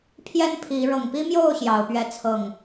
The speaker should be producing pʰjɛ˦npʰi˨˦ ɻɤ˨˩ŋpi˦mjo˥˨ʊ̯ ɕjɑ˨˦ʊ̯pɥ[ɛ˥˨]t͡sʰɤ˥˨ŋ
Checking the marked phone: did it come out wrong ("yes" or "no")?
yes